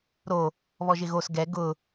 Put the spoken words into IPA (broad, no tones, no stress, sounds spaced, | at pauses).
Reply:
ɾ o | β ɔ ʒ ɪ ɣ o s ɡ ɛ ɡ ʊ